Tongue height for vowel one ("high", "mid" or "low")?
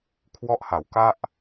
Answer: mid